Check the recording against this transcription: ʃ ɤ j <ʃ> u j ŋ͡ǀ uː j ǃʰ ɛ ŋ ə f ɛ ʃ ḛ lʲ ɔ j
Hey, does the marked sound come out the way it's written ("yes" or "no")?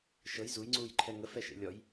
no